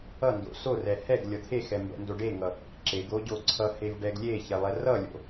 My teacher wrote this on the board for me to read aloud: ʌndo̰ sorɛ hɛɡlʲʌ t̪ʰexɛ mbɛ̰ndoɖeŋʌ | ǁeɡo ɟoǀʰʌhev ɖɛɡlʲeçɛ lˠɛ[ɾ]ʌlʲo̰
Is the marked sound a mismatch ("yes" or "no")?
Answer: yes